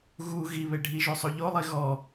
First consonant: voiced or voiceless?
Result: voiced